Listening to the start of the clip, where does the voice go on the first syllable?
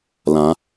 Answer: rising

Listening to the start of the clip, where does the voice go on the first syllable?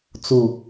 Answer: low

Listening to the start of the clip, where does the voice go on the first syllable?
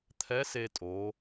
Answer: rising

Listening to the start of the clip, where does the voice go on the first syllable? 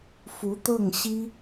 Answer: rising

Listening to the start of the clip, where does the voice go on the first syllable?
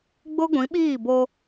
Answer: high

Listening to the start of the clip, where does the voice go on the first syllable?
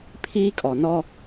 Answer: high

